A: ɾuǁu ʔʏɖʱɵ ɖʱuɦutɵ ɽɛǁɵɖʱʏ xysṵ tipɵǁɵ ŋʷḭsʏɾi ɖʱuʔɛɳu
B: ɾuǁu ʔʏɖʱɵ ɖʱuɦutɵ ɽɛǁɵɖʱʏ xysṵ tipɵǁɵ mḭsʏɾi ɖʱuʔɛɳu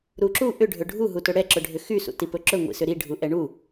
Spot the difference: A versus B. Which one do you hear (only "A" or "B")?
A